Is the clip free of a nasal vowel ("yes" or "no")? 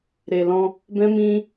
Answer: no